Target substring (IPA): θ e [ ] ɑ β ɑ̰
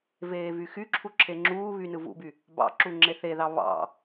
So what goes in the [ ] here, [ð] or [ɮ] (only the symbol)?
ð